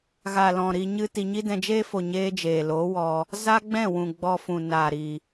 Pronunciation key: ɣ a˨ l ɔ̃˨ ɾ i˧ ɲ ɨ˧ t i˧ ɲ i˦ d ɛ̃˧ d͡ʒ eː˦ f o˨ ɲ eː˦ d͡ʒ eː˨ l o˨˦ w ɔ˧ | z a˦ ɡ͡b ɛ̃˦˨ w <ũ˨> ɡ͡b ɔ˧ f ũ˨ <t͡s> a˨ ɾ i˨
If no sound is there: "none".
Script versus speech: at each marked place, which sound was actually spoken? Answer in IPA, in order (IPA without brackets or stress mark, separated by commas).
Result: ũ˨, n